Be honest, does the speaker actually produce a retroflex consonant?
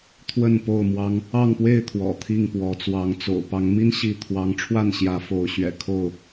yes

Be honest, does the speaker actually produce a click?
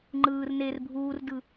yes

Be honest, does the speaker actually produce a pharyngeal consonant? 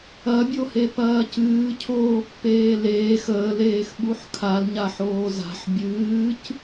yes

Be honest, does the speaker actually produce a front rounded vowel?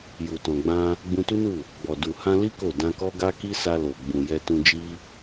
no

